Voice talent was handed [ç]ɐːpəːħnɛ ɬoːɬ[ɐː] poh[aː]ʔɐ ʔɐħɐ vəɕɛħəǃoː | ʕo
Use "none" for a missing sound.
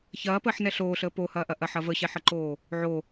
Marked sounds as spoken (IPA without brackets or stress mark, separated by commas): ç, əː, ɐː